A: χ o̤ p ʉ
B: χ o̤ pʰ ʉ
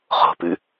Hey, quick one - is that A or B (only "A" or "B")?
A